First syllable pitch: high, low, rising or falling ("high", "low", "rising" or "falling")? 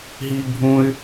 high